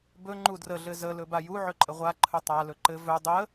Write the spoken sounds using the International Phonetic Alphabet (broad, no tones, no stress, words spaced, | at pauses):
bɵ ŋ͡ǃudrə ɮɘzə lɵbaju ʕɵǃʼəʁʷa ǃʰɵtˤa lɵǃɘ vɵ dˤə